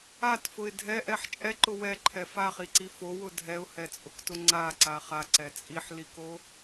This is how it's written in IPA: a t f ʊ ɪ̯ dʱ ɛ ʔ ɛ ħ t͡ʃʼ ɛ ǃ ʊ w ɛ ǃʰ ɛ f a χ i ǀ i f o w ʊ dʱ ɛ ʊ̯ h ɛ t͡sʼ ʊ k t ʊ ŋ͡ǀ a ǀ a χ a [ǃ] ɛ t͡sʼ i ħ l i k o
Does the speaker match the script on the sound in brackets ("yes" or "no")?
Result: no